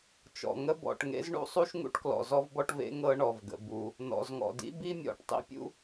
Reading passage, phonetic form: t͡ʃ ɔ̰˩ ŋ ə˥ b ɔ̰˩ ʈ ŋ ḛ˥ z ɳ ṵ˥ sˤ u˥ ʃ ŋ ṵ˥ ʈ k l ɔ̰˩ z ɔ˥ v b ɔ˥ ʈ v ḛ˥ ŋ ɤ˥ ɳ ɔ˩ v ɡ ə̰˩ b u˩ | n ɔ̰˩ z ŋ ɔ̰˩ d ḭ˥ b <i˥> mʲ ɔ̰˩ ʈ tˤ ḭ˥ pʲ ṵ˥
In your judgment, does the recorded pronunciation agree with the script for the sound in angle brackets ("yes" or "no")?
yes